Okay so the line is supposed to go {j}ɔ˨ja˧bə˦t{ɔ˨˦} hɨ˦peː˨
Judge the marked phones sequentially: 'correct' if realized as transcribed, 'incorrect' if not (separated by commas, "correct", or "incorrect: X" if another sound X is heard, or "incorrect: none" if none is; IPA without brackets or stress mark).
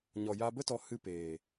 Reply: incorrect: ɲ, correct